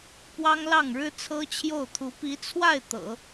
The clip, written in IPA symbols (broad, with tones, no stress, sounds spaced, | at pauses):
p w ɑ˥ ŋ l ɑ˥˩ ŋ ɻ ɻ̩˥ t͡sʰ ɤ˥ t͡ɕʰ j o˥˩ ʊ̯ t̪ʰ u˧˥ p i˧˥ t͡sʰ w a˥˩ ɪ̯ t̪ ɤ̰˨˩˦